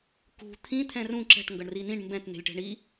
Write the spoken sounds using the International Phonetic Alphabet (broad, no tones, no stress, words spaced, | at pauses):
kṳ t̪ʰĩ t̪ʰɛ̃rũ ǁɛ̤ʈŋɡʌɳ rinĩɳ mbɛ̃t ne̤lʲʈɛ̤ɳi